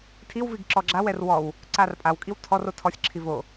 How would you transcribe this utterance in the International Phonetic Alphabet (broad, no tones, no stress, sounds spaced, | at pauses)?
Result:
tʰ i w v i ɡ ǁ ɔ ɡ͡ǁ a w ɛ r w ɔ w | ǀ a r pʼ a w kʼ i w tʰ ɔ r o tʰ ɔ sʲ ǁʰ i v o